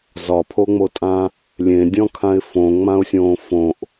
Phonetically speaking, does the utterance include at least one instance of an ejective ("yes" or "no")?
yes